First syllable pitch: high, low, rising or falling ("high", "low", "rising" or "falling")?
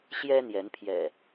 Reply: high